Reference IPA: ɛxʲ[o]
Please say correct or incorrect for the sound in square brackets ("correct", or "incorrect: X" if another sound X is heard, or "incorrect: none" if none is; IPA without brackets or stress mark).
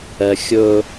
incorrect: ɵ